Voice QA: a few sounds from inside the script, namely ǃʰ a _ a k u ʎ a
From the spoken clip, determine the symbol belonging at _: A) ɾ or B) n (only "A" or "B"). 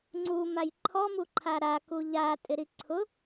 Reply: A